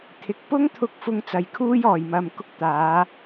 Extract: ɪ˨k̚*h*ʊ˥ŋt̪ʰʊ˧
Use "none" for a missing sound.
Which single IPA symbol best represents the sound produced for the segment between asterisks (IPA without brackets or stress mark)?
p